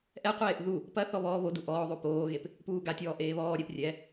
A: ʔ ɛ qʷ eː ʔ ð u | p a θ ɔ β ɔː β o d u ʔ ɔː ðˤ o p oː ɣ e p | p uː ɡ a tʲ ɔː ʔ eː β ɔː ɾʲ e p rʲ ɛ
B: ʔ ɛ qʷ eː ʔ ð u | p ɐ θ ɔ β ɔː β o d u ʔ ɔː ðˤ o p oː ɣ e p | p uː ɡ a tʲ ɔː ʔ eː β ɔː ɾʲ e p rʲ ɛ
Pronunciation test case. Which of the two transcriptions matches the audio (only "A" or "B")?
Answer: B